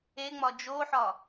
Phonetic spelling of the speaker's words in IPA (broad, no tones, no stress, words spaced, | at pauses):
eŋ͡mɒ d͡ʒoħɒ